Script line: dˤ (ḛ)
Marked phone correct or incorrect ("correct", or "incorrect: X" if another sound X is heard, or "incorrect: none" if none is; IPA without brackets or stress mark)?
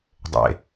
correct